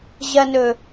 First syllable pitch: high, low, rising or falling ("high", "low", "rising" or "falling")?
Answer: low